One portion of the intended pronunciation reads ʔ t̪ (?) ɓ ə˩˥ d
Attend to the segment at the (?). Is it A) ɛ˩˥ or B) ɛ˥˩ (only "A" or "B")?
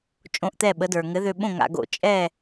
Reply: B